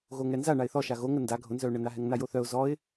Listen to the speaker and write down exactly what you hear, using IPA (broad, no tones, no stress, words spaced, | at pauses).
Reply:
ɣoŋɛnza ɳaɪ̯θɔʃa ɣoŋə nda ɡʱʊnzœʊ̯ ɳənaɦɛŋ najoθœʊ̯ zɔɪ̯